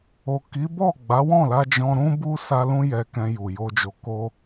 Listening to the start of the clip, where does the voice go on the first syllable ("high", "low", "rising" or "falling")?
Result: low